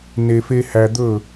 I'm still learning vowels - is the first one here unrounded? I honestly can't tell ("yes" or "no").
yes